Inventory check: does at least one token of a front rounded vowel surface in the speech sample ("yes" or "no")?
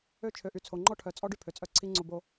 yes